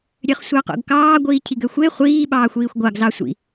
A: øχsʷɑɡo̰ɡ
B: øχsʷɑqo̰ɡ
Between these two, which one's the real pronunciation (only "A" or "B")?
B